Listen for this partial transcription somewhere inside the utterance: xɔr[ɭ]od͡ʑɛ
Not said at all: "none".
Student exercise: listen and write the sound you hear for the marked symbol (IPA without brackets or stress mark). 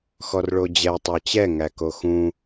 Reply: ɭ